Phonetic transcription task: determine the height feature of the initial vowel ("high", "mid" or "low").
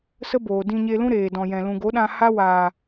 mid